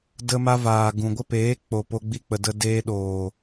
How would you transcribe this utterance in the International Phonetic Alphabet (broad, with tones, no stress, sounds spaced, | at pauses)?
d ə˧ m a˧ v aː˨ ɡ ũ˨ ɡʷ ə˦ p eː˨˦ k͡p o˨ p o˧ ɡ͡b i˧ k͡p ə˨ d ə˧ d eː˧ ɗ oː˨